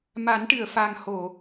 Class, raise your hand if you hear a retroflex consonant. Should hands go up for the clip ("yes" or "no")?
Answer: yes